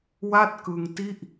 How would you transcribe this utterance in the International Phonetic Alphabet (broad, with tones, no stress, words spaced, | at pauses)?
wa˥˩t̚kɯ˧ŋti˥˩ʔ